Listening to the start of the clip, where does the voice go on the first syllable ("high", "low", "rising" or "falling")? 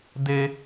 high